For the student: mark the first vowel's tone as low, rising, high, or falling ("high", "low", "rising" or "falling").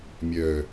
low